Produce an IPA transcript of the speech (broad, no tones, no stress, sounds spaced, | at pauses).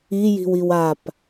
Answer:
i j i̤ w i w a p